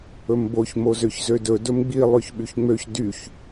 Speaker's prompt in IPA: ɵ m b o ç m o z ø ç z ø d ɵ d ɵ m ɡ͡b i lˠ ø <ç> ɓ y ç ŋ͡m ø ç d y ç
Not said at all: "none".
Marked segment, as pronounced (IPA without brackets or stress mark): ç